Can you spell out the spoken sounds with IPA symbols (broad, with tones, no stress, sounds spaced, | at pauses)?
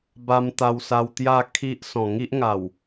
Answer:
b a˧ m t̪ a˧ w s a˧ w t̪ j a˥˧ kʰ i˦ ʔ s ɔ̃˨˩ ŋ i˦ ʔ ŋ a˨˩ w